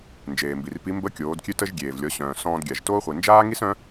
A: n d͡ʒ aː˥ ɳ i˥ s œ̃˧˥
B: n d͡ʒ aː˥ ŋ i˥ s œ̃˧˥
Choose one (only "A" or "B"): B